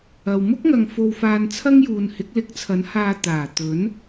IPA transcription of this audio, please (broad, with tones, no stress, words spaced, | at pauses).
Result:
ɐ˨w mʊ˥k̚ŋɐ˨ŋ fo˧wfaː˧n t͡sʰɐ˥ŋjuː˨n hɪ˨˥k̚lɪ˨˥k̚t͡sʰɐ˨˥nhaː˧ t̪aː˨˩t̪ɵ˨˥n